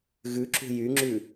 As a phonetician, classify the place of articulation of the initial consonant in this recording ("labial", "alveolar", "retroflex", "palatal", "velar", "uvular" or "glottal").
velar